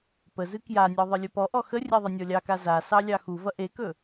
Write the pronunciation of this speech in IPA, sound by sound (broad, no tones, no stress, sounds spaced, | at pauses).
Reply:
p ə z ɨ k j a nʲ ɔ ðˤ ɨ lʲ ɵ p ɔ ʔ ɔ x ə rʲ e ðˤ ɐ nʲ ɔ lʲ ɑ k a z a s ɑ lʲ ɑ x u v ɐ ʔ e k ɵ